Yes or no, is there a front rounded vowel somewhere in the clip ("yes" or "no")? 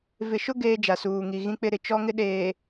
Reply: no